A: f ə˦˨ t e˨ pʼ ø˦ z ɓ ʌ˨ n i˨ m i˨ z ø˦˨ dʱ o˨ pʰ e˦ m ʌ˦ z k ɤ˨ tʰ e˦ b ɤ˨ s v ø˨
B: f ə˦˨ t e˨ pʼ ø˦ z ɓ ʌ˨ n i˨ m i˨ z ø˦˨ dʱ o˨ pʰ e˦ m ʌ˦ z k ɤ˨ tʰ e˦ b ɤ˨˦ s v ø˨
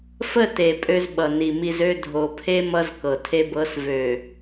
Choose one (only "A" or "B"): B